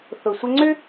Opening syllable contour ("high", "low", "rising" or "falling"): low